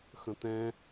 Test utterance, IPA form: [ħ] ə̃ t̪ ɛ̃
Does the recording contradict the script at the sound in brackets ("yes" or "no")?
yes